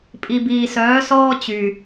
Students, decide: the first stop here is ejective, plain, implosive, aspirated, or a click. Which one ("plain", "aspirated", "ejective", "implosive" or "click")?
ejective